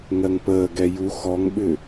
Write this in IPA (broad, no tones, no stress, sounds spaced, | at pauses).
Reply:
ŋ ɜ ŋ p əː ɡ ɛ j u x ɔ ŋ ɓ ʏ